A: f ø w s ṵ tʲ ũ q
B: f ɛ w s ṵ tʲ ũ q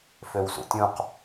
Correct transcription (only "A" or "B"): A